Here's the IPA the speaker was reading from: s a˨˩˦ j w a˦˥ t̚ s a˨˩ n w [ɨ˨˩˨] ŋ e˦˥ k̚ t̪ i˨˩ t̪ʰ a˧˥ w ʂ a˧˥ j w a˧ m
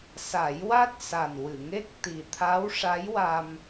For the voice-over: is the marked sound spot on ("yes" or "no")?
yes